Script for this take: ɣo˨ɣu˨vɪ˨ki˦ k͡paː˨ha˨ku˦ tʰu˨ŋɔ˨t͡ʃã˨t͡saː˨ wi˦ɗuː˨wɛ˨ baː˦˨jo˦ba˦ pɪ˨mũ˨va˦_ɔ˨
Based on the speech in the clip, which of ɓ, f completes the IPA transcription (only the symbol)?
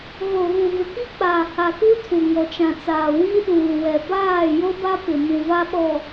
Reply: ɓ